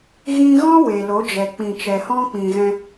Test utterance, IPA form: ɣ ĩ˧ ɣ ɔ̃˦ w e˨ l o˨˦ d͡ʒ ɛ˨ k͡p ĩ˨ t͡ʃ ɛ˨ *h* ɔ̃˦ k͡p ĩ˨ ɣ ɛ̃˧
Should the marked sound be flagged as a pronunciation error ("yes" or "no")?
no